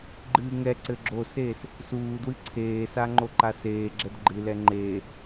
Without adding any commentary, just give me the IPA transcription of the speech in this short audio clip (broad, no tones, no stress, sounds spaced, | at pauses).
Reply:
ɡ͡ǃ ɨː ŋ ɛ ǀ ɘ ɡ͡ǁ o s eː s | s uː d w ɨ ǀʰ eː s a ŋ͡ǃ o ǃ a s eː ɡ͡ǁ ɛ d ɡ͡ǃ ɨ l ɛ ŋ͡ǃ eː